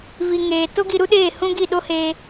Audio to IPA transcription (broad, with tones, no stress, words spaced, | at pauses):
vi˨ŋeː˨ to˦ɡi˧ɾu˦ ɗeː˦˨hũ˦ ɡi˦˨ɗo˦heː˧